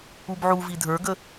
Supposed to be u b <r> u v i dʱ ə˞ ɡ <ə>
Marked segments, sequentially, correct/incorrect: incorrect: ʕ, correct

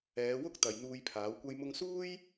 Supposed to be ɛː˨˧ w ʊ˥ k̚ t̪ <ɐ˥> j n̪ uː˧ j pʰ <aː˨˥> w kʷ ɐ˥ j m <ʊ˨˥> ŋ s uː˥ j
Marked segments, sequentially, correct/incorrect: incorrect: ɐ˨, correct, incorrect: ʊ˧

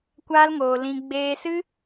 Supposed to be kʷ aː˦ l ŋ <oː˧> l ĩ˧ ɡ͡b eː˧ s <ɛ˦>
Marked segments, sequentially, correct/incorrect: correct, incorrect: ɨ˦

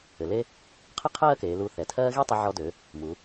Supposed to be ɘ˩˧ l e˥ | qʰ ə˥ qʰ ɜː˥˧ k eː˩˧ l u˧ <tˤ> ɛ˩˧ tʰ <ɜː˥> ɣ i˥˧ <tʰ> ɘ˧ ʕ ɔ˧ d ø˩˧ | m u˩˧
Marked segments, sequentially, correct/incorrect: incorrect: θ, correct, incorrect: tˤ

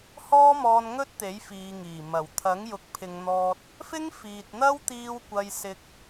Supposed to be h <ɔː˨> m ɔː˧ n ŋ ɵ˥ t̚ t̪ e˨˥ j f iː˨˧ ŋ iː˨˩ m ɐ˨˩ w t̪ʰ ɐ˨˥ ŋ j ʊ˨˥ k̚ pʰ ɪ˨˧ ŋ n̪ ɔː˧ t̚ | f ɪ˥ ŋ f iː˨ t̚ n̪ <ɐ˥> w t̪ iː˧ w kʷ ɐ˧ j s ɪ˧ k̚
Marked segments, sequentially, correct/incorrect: incorrect: ɔː˥, correct

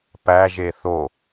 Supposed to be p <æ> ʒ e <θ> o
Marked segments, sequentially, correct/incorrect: correct, correct

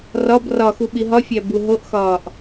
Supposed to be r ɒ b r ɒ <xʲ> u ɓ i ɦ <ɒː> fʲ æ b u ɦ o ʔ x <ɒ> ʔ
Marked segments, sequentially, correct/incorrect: incorrect: x, incorrect: ɒ, incorrect: ɒː

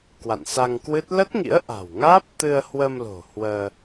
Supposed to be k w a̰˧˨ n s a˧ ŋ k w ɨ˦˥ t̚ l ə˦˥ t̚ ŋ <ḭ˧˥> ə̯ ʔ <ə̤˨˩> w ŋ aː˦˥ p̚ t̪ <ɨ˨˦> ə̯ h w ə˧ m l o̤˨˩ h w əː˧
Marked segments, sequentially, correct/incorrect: correct, incorrect: a̤˨˩, incorrect: ɨ˧

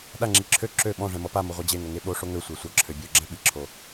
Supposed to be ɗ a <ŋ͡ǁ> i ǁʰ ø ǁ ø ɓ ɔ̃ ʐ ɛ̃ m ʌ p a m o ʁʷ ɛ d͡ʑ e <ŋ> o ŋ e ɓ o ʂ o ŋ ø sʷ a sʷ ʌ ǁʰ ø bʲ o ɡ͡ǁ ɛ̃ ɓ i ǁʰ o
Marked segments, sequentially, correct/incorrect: correct, correct

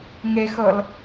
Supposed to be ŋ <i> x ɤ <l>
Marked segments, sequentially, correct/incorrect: incorrect: e, correct

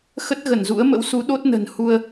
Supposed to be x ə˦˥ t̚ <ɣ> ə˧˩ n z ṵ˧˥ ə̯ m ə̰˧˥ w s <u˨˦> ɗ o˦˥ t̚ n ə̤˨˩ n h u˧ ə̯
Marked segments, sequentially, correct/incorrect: correct, correct

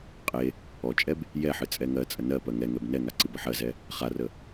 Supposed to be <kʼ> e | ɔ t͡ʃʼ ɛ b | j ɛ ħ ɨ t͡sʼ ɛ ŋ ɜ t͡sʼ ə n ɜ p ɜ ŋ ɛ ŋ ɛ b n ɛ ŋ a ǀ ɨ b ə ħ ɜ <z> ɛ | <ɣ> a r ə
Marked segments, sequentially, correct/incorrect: incorrect: qʼ, correct, incorrect: χ

